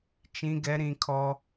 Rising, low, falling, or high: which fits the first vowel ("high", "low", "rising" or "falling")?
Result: high